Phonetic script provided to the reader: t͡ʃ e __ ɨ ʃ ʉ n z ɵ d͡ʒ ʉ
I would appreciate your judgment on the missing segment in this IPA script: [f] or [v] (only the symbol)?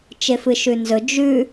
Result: f